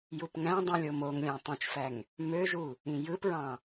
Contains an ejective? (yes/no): no